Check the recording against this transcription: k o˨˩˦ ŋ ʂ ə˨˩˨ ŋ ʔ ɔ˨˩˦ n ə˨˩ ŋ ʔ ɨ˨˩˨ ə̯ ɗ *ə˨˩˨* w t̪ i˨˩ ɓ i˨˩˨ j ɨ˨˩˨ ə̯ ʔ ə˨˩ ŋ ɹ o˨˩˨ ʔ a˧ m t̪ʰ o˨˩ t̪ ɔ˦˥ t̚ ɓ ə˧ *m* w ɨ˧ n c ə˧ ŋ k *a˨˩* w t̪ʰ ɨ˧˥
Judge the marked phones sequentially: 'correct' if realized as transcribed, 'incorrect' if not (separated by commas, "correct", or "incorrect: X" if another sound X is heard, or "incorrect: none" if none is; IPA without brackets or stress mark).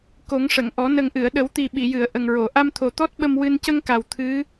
incorrect: ə˨˩˦, correct, correct